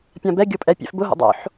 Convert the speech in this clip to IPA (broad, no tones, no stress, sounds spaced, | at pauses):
pʲ ã b ɛ ɡʲ o pʼ ɛ pʲ ɛ̰ f b ʊ ɦ o̰ dˤ o̰ ħ